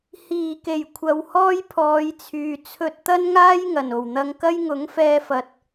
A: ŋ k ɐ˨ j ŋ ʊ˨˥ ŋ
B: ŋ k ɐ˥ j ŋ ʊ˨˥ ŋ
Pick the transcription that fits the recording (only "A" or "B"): B